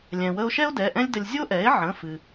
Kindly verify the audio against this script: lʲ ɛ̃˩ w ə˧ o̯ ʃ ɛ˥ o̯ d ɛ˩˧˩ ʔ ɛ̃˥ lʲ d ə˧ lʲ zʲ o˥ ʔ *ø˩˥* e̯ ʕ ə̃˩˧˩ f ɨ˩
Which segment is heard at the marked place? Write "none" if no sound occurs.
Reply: ɛ˩˥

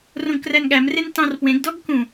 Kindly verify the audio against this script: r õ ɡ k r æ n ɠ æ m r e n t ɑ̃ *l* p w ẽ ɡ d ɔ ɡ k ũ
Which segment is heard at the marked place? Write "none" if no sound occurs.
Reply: r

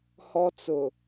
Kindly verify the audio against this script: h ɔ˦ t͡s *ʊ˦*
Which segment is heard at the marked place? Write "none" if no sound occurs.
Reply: ʊ˨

